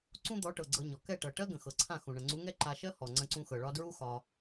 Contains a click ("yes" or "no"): yes